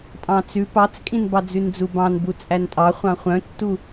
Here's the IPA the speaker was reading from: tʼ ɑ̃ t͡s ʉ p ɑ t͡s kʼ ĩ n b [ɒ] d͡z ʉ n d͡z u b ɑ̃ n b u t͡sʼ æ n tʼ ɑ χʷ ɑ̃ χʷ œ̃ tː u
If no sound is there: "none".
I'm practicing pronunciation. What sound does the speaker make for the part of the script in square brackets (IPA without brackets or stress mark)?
ɑ